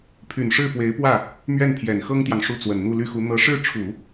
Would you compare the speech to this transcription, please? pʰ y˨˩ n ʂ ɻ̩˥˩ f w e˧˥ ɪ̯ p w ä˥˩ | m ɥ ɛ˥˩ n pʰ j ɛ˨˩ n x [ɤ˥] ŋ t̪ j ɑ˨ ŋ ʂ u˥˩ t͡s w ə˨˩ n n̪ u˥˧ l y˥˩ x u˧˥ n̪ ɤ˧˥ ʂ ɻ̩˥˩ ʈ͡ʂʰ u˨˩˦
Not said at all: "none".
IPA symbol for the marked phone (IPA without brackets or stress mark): ɤ˥